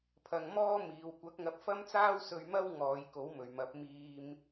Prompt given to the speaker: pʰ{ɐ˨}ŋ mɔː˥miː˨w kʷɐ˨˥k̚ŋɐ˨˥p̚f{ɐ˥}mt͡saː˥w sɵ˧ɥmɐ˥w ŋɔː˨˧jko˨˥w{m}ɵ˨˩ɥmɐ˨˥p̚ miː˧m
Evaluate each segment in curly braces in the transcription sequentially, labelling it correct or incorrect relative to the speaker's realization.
correct, correct, correct

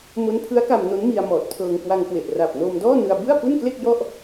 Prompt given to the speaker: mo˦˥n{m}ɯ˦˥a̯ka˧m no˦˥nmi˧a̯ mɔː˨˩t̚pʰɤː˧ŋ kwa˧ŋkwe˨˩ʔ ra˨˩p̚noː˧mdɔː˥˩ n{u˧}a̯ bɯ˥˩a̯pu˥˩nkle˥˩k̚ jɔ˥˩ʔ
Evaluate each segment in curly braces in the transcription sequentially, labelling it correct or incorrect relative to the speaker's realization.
incorrect: pʰ, incorrect: ɯ˧

